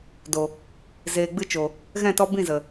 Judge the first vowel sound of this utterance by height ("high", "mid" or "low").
mid